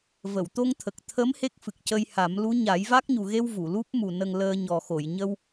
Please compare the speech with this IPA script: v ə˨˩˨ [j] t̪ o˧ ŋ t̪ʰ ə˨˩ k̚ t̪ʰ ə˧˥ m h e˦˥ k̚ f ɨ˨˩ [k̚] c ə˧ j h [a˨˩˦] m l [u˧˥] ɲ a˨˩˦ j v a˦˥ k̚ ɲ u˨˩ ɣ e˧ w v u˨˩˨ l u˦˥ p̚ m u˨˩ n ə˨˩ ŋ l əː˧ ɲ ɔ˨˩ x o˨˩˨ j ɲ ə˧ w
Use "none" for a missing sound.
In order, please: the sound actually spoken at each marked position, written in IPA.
w, k̚, a˨˩˦, u˧˥

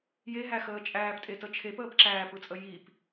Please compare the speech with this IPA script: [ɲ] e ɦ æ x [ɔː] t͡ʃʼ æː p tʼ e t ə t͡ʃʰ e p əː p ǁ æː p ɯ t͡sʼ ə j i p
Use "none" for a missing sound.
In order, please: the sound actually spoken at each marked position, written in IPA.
j, əː

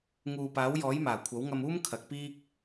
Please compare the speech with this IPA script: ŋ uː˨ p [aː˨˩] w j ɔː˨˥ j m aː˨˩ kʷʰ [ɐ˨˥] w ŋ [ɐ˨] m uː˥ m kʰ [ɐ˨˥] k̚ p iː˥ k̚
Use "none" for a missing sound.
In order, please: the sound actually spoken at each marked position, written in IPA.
aː˨˥, ɐ˨˥, ɐ˧, ɐ˨˥

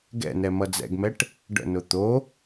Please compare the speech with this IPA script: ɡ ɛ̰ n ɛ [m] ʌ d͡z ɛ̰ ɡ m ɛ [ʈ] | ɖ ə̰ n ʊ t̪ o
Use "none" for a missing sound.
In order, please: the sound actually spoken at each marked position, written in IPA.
m, ʈ

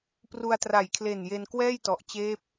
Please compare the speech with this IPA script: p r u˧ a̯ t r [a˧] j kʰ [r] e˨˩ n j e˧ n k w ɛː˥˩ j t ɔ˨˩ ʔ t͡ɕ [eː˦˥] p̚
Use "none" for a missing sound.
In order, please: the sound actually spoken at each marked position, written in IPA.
a˨˩, l, eː˦˥

